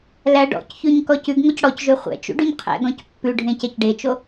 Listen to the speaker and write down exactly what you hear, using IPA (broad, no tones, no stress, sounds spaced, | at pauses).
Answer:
l æ ɖ ɔ̰ c ç ʉ ɲ k ɔ c ʉ ɡ ŋ o c ɽ ɔ c ʒ ø χʷ ɛ̰ t͡ʃ ṵ ɖ ʉ ɲ qʰ ɛ̰ ɡ ɔ̃ c pː ʉ ɖʱ ẽ c ɛ c ɖ e t͡ʃ o